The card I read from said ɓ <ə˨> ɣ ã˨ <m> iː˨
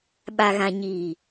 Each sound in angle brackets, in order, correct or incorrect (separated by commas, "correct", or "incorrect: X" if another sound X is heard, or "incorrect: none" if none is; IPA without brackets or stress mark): incorrect: a˨, incorrect: ɲ